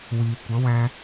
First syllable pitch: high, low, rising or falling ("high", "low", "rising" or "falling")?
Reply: low